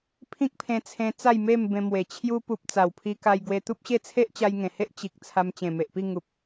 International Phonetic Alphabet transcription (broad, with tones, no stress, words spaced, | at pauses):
pʰĩ˦k̚pʰẽ˧t͡sʰẽ˧ t͡sa˥˧jme˥˧mbẽ˧mwe˨˩ t͡ɕʰju˧ pu˨p̚ t͡sa˨˩wpʰi˧ka˧j ɡwe˧t̪u˦p̚ɕe˥˧ t͡sʰe˦ʔt͡ɕa˧jŋẽ˨˩he˦ʔ t͡ɕi˨k̚ t͡sʰa˧mt͡ɕẽ˨˩me˨ʔpi˥˧ ŋu˨p̚